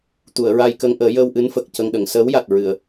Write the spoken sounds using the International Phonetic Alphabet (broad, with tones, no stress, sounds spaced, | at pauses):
t̪ u˨˩˨ ə̯ ɹ a˧ j k ə˧ ŋ ʔ əː˨˩˦ j əː˧ w ʔ ɨ˧˥ n f ə˨˩ k̚ c ə˧ ŋ ɗ ə˨˩˨ ŋ s əː˧˥ w j a˨˩ t̚ ɹ ɨ˨˩˨ ə̯